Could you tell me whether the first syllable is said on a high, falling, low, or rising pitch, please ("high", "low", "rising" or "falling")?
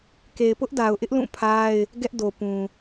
low